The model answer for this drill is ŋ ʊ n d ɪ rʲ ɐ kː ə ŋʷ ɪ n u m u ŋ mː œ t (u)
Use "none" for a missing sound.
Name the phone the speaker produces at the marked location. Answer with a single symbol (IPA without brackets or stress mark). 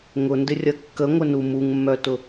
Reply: ʊ